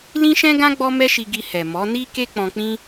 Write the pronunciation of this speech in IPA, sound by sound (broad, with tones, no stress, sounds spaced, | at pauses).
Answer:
l ĩ˦ ʃ ɛ̃˦ ɡ ã˦ ɡ͡b ɔ˦ m ɛ˦ ʃ i˧ ɡ i˧ h ɛ˨ m ɔ˨˦ n i˦ k e˦ k͡p ɔ̃˧ k͡p ĩ˦